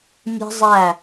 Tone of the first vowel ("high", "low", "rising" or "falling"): high